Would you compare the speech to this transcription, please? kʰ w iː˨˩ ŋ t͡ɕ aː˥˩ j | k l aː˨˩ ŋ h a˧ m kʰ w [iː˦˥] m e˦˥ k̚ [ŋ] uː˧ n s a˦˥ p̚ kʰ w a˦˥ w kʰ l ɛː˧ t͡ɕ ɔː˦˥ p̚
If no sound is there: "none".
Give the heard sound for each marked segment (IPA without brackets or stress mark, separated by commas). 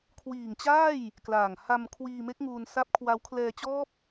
iː˧, ŋ